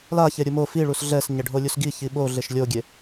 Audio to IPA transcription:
l a ç e ɾʲ u m o f i ɭ u s ɮ ɛ s ɲ ɛ ɖʱ o lʲ u s ɡ i ç i ɓ o ɮ e ʃ lʲ o ɡʲ e

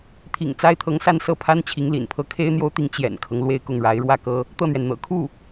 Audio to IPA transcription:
t̪ʰ ḭ˨˩ ŋ t͡s a˥ ɪ̯ t̪ʰ ɤ˧˥ ŋ s a˥˧ n s ɤ˥˩ pʰ a˥ n t͡ɕʰ i˧˥ ŋ l ḭ˨˩ n pʰ ɤ˥ kʰ e˥ ɪ̯ n̪ j o˥ ʊ̯ t̪ i˧˥ ŋ t͡ɕ j ɛ̰˨˩ n kʰ ɤ˦ ŋ l w e˥˧ ɪ̯ k ʊ˥˩ ŋ ɻ a˧˥ ɪ̯ ɻ w ä˥˩ k ɤ˥ | t̪ ɤ˥˩ n̪ ɥ ɛ˩ n n̪ ɤ̰˨˩ kʰ u˥˩

